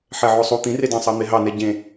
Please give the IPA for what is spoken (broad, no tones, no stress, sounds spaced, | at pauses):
ħ ɛ ʕ o sˤ u t̪ ĩ r e d ɑ̃ sˤ ɑ n̪ e ɦ ɑ n ɛ ɟ ẽ